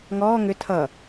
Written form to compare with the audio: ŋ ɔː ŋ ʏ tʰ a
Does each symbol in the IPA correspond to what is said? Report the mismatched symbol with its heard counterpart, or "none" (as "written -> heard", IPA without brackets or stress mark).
a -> ʌ